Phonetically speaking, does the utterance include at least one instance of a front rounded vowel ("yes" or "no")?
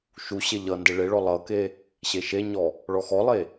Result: no